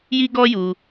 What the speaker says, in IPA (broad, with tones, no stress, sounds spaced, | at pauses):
j i˦ ɡ ɔ˦ j u˧